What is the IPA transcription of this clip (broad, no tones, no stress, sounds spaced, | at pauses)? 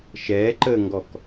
ʃ ɛː ǃ əː ŋ ɡ ɔ k